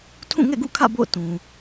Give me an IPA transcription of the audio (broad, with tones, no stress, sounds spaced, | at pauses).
tʰ ũ˦˨ ŋ ɛ̰˦˨ ɡ ṵ˦˨ kʰ ä̰˦˨ b o̰˦˨ ʊ̯ t ũ˨